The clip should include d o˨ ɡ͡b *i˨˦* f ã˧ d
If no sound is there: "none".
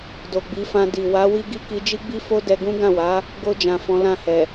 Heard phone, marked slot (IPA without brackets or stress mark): i˨˦